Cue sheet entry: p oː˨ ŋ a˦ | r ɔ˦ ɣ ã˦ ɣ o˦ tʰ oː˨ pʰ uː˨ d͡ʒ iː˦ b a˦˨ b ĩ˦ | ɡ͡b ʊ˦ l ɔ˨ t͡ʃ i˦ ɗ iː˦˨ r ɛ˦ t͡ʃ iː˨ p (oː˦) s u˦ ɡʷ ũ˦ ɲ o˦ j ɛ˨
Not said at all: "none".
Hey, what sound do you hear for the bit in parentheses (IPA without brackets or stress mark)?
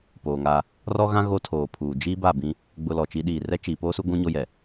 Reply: oː˦